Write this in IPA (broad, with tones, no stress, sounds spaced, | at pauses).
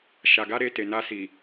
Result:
ʃ a˨ ɡ a˧ ɾ e˧ t e˨ n a˧ s i˨